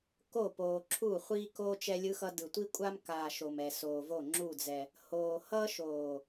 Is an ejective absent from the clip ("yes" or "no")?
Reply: no